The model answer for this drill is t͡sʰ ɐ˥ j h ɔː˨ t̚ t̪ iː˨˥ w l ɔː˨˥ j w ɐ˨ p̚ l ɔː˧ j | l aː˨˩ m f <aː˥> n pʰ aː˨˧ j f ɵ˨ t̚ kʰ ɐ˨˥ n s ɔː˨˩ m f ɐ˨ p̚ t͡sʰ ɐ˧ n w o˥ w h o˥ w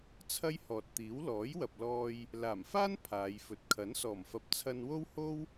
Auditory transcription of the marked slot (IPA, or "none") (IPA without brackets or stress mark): aː˥